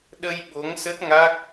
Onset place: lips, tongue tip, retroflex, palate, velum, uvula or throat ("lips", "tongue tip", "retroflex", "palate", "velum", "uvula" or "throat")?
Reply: tongue tip